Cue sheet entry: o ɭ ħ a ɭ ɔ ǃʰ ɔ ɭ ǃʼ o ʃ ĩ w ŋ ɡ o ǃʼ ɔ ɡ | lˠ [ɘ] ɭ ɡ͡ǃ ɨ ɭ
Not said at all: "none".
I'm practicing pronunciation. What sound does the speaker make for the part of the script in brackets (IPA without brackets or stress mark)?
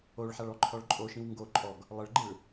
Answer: ɘ